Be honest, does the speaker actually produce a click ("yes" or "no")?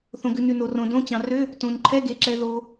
yes